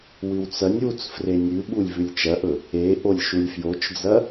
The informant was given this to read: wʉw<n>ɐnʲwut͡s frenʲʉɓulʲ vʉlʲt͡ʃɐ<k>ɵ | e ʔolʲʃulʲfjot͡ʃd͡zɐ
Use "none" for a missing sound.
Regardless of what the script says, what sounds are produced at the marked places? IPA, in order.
t͡s, ʔ

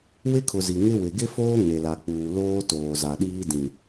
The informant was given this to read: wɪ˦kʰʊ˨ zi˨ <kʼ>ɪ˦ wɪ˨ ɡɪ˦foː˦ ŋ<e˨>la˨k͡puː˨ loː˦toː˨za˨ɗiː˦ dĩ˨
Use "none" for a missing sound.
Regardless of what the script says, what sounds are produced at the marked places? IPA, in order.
ŋ, e˨

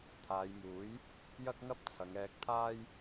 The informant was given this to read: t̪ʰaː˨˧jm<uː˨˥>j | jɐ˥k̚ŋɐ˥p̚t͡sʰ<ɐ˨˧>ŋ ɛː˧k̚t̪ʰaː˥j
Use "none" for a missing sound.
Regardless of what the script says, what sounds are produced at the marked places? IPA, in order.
uː˨˥, ɐ˨˧

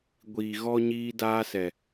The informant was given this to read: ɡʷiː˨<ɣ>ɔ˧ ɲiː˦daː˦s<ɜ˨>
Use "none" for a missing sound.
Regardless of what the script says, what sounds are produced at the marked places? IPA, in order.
ɣ, ɛ˨

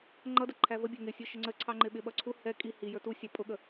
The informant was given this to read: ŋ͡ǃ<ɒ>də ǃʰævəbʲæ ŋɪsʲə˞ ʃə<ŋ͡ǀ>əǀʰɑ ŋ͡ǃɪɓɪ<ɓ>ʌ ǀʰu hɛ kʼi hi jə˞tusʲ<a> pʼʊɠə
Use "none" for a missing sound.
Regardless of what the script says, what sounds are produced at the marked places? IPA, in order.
ʌ, ŋ͡ǀ, ɓ, ɑ

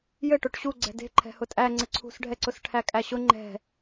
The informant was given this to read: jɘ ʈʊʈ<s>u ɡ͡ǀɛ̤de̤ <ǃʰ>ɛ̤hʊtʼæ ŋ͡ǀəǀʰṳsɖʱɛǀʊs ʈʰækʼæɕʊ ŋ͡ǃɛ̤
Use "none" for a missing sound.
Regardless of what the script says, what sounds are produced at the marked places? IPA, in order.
ɕ, ǃʰ

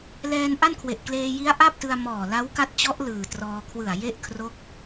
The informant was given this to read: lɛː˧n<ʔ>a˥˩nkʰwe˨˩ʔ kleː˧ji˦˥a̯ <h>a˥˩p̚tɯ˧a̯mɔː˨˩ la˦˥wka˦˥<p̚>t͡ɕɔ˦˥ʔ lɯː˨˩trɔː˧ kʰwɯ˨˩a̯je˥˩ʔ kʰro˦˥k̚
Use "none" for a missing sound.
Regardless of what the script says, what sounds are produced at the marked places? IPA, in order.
ʔ, ʔ, t̚

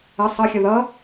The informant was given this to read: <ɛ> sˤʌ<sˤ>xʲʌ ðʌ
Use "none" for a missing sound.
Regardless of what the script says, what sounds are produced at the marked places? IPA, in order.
ə, none

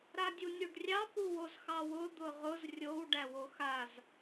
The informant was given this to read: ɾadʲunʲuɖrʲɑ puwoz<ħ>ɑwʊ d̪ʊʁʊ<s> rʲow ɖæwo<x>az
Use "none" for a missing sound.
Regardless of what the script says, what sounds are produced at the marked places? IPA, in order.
x, z, x

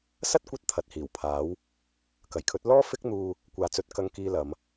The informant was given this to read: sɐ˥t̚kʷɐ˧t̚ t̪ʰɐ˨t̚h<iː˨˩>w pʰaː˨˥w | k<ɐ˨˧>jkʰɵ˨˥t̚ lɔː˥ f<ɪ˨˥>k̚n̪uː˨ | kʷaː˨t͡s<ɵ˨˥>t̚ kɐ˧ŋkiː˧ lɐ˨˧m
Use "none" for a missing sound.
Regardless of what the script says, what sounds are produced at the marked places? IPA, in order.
iː˨˩, ɐ˨˩, ɪ˧, ɵ˨˥

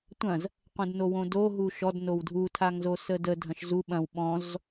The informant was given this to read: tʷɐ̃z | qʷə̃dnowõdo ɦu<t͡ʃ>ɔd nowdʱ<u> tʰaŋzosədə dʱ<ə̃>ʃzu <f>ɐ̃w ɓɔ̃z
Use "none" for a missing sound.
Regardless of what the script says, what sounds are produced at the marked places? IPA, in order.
ʃ, u, ɐ̃, ɓ

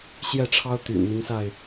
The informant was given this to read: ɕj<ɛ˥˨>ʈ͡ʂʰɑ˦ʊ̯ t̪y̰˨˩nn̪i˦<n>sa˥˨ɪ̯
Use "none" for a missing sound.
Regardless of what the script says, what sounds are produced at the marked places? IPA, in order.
ɛ˥˨, ŋ

